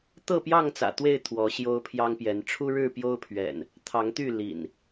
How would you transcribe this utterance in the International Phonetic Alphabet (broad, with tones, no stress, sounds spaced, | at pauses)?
t̪ ɤ˥˨ p j ɑ˥˨ ŋ t͡s ä̰˨˩ t̪ w e˥˨ ɪ̯ t̪ʰ w ɔ˨˦ ɕ j o˦ ʊ̯ pʰ j ɑ˦ ŋ p j ɛ˨˦ n ʈ͡ʂʰ u˦ ɻ ɻ̩˥˨ p j o˦ ʊ̯ pʰ ɥ ɛ̰˨˩ n | t̪ʰ ɑ˨˦ ŋ t̪ y˥˨ l ḭ˨˩ n